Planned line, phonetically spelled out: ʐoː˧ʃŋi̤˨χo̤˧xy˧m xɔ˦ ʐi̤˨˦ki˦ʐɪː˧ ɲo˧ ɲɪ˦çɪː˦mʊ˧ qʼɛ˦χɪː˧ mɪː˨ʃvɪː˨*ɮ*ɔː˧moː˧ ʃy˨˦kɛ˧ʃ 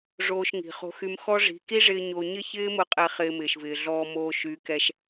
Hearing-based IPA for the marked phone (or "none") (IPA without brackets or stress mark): ɮ